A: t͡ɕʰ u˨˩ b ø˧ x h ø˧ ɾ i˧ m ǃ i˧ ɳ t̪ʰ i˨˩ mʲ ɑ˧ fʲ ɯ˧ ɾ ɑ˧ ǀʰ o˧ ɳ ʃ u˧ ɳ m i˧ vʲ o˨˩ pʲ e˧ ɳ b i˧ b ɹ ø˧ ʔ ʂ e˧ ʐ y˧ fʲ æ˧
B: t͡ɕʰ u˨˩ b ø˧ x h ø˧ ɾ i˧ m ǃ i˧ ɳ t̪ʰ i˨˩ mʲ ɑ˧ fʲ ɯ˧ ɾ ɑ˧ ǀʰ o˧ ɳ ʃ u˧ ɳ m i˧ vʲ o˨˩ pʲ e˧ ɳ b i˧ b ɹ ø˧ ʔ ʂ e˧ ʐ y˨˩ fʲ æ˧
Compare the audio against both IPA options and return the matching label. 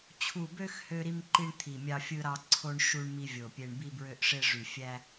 B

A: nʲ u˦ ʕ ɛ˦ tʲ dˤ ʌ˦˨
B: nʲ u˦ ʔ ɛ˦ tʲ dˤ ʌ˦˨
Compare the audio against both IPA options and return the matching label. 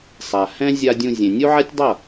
A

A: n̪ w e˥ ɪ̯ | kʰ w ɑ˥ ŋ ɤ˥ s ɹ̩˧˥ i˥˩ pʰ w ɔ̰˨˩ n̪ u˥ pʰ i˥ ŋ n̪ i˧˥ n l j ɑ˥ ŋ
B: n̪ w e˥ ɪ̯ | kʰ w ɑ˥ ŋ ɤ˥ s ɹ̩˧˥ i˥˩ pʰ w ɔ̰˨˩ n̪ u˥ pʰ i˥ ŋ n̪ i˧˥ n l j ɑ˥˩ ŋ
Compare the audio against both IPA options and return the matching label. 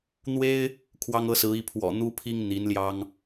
A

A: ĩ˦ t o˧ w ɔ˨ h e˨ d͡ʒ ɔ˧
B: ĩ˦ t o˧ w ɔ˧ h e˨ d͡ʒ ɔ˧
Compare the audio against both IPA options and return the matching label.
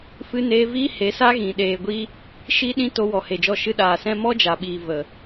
A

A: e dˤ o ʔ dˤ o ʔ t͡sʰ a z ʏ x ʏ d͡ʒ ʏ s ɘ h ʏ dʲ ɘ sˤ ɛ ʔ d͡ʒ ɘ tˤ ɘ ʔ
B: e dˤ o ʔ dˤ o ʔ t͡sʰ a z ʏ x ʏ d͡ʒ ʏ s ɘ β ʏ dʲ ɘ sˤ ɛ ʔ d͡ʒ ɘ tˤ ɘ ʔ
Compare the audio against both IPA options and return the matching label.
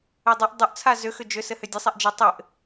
A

